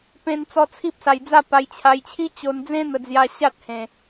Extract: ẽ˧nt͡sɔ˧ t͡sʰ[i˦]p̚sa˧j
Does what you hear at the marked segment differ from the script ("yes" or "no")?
no